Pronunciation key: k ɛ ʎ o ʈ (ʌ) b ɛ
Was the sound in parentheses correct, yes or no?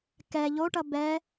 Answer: yes